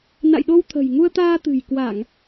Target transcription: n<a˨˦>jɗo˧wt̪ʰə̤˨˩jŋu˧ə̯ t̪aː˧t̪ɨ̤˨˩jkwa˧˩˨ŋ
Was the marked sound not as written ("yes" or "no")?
yes